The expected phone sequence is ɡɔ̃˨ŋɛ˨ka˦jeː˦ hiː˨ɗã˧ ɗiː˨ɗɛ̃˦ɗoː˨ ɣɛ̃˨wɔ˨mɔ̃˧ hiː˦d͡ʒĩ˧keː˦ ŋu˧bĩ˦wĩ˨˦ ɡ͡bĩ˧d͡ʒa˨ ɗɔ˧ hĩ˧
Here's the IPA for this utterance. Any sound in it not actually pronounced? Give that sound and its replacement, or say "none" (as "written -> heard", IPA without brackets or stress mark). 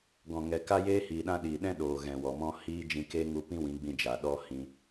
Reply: b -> p